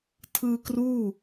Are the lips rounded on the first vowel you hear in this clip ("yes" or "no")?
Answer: no